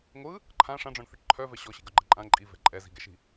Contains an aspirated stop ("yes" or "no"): yes